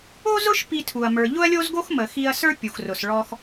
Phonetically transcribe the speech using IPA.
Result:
o˥ z ʊ˥ ʃ p i˧ tʰ u˩ ɐ̯ m ə˞˩ ʎ ʊ˥ ɐ̯ lʲ o˥ z ɡ o˥ x m ə˩ x i˧ ɐ̯ s ə˞˥ pʲ u˩ x r ʊ˩ s ɭ ɔ˧ x

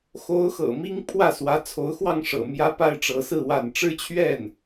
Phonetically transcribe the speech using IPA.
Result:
x o˧˥ ʊ̯ x ɤ̰˨˩ m i˥ ŋ pʰ w ä˥˩ s w ä˧˥ t͡sʰ o˧˥ ʊ̯ x w ɑ˥˩ ŋ ʂ ɤ̰˨˩ m j ä˥ p a˥ ɪ̯ ʈ͡ʂ ɤ˧˥ s ɹ̩˥˧ w a˥˩ n ʈ͡ʂ ɻ̩˥ t͡ɕʰ ɥ ɛ˥˩ n

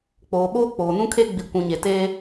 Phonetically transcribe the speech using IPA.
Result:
k͡p oː˨ ɓ oː˦ k͡p oː˨ n ũ˦ kʰ e˦ ɡ͡b i˨ kʷ ũ˨ ɲ e˨ t eː˦

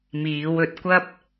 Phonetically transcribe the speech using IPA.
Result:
m iː˨˧ w ɵ˨˥ t̚ kʷ ɐ˥ p̚

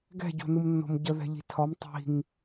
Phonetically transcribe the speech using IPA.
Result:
ɡ ɛ̤ ɟ o̤ n ɯ m nː o̤ m ɟ ə ð ɛ̤ ʎ i̤ tʰ ɒ m tˤ i̤ ŋ

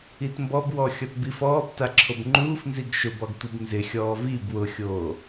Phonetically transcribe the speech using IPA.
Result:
i t m b ɔ b w ɔ xʲ ɔ t b i f ɔː b t a ǁʰ o b ŋ͡ǃ uː f n z i ɡ ʃ ʊ b ɔ ɡ tʷ i b n z ɪ xʲ ɔː v i b w ʊ xʲ oː

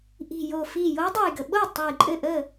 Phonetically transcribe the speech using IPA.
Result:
ʔ i̤˧˩ j o˧˩ f i˧˩ j o˧˥ dˤ o˧˩ j ɡ ə˩ ɓ o˥˩ j tˤ ɐ˧˩ j ǃʼ ɘ˥˩ ʔ ə˥˩

